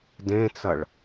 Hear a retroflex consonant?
yes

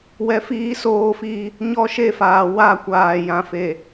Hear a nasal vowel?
yes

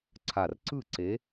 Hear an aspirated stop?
yes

